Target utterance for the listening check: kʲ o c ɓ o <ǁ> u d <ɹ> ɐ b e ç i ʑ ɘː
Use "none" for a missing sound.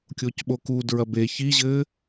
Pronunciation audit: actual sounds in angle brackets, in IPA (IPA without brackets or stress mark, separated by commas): k, ɹ